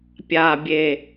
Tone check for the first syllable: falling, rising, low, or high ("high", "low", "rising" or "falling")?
low